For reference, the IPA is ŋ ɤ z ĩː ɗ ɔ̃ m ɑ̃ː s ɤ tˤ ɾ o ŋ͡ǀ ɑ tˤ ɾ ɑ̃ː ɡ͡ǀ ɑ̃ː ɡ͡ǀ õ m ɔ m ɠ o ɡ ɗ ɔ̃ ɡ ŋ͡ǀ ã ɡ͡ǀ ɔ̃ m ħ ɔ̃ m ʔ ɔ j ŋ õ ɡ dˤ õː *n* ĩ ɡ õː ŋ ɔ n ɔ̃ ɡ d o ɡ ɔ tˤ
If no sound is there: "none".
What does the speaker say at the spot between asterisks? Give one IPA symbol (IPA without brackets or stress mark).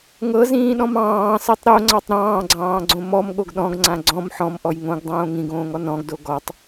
ŋ